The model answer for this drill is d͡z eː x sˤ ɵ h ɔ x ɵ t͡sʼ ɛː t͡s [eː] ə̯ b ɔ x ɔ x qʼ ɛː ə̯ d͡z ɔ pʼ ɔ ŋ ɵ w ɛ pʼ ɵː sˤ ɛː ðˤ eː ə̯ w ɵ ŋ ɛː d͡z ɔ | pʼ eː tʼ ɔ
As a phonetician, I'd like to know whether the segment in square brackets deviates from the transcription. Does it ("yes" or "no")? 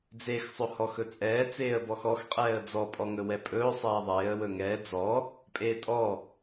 no